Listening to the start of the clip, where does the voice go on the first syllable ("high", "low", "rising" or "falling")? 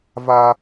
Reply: high